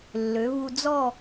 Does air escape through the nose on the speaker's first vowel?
no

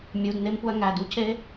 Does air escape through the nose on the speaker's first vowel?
no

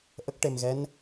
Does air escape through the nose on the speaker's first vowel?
no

